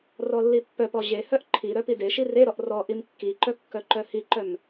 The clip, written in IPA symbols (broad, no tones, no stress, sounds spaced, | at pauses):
r ɔ lː i pː œ p ɔ ʑ e h œ ʔ ǃʰ i ɾ œ p i d e ʃ i r e ɾ ɔ ʔ r ɔ ʔ i m kː i ǃ œ kː œ ǃ œ h i ǃ œ m